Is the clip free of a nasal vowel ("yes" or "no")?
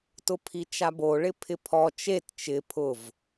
yes